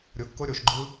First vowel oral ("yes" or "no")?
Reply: yes